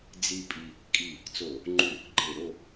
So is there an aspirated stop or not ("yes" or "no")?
no